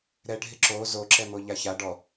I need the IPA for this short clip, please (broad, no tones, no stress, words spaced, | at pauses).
ɾɛɖʱɪ ǁo zoǁɛmoʎa ça ɖɔ